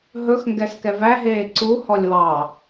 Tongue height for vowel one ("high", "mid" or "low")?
mid